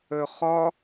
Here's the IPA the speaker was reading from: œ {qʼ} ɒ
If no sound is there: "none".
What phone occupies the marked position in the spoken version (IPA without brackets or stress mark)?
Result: χ